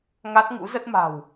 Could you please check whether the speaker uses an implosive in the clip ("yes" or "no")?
no